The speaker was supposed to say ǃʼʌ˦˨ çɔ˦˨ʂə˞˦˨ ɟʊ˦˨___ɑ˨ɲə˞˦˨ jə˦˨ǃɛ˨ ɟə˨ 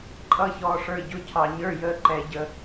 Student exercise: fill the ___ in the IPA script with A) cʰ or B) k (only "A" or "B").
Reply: A